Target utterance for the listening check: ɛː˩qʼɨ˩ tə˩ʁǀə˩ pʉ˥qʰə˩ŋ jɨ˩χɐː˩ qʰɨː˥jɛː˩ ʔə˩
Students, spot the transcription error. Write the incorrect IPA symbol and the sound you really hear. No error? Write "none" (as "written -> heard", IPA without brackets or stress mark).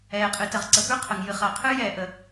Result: none